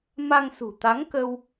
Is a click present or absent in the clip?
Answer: absent